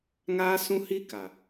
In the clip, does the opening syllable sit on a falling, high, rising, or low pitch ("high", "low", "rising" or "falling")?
high